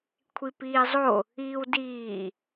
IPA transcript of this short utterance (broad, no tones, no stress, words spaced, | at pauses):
kʷʰipiːzˤo | iːwdiː